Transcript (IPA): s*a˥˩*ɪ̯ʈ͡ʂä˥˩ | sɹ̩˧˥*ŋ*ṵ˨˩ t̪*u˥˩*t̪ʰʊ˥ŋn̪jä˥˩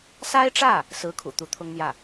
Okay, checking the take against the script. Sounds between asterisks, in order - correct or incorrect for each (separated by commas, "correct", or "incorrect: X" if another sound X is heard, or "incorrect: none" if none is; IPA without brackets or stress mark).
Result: incorrect: a˥, incorrect: kʰ, incorrect: u˧˥